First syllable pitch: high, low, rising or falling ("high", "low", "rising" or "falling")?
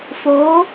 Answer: rising